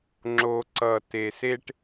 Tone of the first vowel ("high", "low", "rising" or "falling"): low